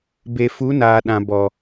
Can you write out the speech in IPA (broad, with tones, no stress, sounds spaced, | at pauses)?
b e˨ f u˨˦ n aː˨ ɗ ã˨ b ɔ˨